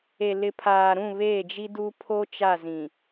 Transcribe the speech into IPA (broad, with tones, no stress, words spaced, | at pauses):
e˨lɪ˨pʰaː˨ɾũ˦˨ βeː˦˨d͡ʒi˦duː˦ pʰo˦t͡ʃa˦˨zĩ˨